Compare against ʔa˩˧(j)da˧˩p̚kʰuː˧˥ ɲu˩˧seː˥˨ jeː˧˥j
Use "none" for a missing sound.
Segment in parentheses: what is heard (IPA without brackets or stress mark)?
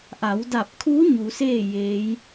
w